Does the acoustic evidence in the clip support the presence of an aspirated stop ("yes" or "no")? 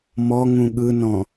no